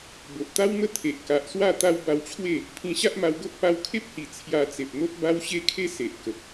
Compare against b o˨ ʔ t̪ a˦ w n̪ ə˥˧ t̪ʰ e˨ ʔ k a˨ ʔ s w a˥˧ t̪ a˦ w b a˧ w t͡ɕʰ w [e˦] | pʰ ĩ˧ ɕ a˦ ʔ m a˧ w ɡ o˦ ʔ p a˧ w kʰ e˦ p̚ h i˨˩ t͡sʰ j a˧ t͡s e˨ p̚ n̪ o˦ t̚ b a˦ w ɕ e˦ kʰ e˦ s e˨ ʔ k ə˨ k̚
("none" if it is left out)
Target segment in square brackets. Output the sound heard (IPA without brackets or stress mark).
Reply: e˥˧